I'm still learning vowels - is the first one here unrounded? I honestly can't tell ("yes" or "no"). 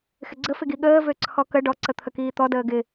yes